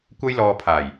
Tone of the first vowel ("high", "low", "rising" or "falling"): high